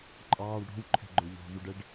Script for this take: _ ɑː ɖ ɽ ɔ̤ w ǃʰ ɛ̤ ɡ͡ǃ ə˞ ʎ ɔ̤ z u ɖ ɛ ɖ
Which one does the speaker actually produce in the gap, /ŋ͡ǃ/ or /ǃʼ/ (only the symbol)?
ǃʼ